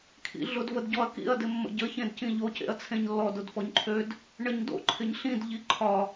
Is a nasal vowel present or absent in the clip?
present